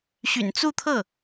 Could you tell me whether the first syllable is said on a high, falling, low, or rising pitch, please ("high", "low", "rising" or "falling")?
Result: low